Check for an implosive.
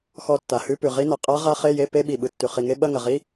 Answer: present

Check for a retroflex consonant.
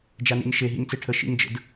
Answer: present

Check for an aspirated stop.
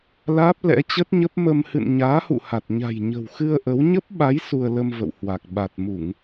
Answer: absent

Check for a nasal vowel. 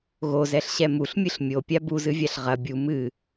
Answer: absent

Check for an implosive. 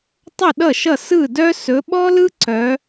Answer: present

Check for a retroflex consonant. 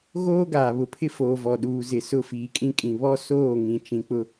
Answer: absent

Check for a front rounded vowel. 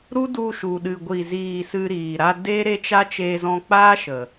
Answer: absent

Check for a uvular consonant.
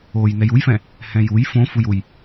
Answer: absent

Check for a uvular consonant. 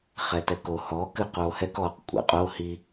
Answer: present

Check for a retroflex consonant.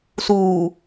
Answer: absent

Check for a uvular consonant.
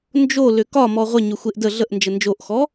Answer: present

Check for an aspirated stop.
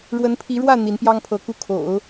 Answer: present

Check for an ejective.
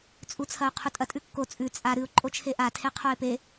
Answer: present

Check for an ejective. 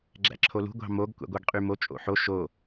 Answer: present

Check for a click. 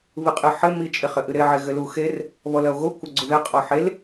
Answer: present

